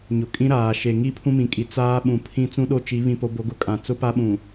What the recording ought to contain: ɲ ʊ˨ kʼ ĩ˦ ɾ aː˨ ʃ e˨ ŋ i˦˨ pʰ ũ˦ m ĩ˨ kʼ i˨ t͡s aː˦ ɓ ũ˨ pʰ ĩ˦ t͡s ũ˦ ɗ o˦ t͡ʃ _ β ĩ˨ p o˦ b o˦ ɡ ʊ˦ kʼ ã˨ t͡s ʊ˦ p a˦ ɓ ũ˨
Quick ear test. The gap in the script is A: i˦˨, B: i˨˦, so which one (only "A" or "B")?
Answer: B